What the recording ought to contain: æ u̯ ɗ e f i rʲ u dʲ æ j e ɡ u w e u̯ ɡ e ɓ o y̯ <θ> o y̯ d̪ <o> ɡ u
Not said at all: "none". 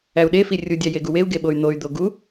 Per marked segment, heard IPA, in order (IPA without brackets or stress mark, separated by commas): n̪, o